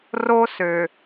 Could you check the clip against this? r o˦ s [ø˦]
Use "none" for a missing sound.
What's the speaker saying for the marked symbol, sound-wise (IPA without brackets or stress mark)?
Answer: ø˨